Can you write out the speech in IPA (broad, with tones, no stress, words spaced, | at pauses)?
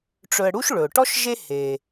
ʈ͡ʂɵ˨ə̯ ɽu˥ʃ ɭɵ˩ʊ̯ʈɔ˥ʃ ʒe˥ he˩